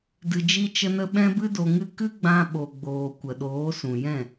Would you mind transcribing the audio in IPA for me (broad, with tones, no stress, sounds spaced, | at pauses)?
d ɨ˧ d͡ʒ i˦ t͡ʃ ə˦ n ə˦ ɓ ɛ̃˦ b ɨ˦ d o˧ ŋ ɨ˦ k ɨ˦ ɡ͡b ã˧ ɓ o˨ ɡ͡b oː˨ kʷ ə˨ ɗ oː˨˦ s ũ˨ j ɛ̃˦˨